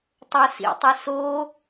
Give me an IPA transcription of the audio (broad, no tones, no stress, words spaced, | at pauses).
tˤosḭtˤi so